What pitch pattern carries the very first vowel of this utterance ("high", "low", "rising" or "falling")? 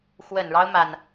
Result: low